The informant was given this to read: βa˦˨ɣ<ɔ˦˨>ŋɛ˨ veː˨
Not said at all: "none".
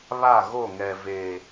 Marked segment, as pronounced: o˦˨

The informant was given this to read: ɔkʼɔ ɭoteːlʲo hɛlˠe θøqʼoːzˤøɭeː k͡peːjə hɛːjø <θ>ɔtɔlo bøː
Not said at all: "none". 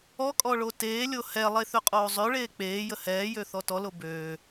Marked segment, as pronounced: θ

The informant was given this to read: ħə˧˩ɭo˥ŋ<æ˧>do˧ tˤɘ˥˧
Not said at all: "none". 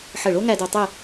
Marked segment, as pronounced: æ˧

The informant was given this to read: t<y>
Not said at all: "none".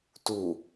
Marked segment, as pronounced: u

